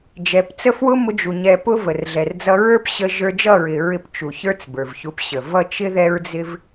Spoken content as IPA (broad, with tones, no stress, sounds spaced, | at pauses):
d͡ʒ ɛ˨˦ p t͡s ə˦ f w ʊ˦ m ʊ˧ d͡ʒ u˨ ɲ ɛ˧ p ʊ˦ v ə˨ r ɮ ɛ˨ r d͡z ʌ˧ ɹ ə˞˦ p ɕ ə˧ ʒ ə˞˧ d͡ʒ ʌ˦˨ ɹ ɪ˨ ɹ ɪ˧ p t͡ʃ u˨ ç ə˞˦ t͡s b ə˞˨ v ç u˧ p ɕ ə˨ v ʌ˦˨ t͡ʃ ɪ˦ ð ɛ˦ ɹ d͡z ɪ˦ v